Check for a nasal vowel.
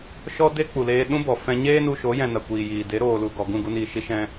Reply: present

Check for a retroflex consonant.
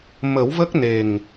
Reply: absent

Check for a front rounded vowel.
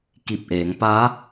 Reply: absent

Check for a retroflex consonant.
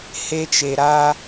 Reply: absent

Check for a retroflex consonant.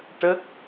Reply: present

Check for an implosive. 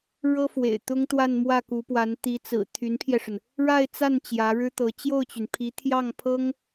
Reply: absent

